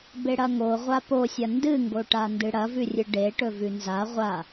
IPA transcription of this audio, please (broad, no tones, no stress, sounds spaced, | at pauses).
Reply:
b e ɽ ɐ ŋ o ʁʷ a p o sʲ ɐ n d ɨ ŋ ɡ o ʈ a n d ɨ ɽ ɐ v ʉ rʲ ɨ ɖ e ʈ ɵ v ʉ n z a ʁʷ a